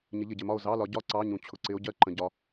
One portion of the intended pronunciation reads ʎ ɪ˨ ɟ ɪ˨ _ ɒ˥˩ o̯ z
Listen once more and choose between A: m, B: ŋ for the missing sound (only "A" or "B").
A